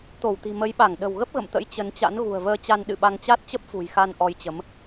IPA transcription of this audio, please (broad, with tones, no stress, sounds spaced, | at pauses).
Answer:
t̪ o˧˩ w t̪ i̤˨˩ m ə˨˦ j ɓ a˧˩ ŋ ɗ ə̤˨˩ w ɣ ə˦˥ p̚ ɣ ə̰˧˨ m t̪ ə̰˧˥ j t͡ɕ ə˨˦ n t͡ɕ a̰˧˥ n ɣ ṳ˨˩ ə̯ v əː˧ t͡ɕ a˧ n ɗ ɨ̰˧˨ ɓ a˧ ŋ t͡ɕ a˦˥ t̚ t͡ɕ ə˦˥ p̚ f ṳ˨˩ j x a˧ n ʔ ɔ˧ j t͡ɕ ə˨˦ m